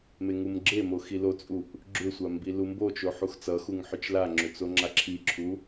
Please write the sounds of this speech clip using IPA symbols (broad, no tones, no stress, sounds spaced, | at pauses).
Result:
m e ŋ u m ɡ͡ǁ e m o x i l o t͡sʼ u ʔ | ɡ͡ǁ ʏ sʷ a m b i l u m b o t͡ʃ o ħ u x t͡s ʌ x u ŋ ħ ʏ t͡ʃ l a ŋ͡ǁ ʏ t͡s o ŋ͡ǁ a ǁʰ i ǁʰ u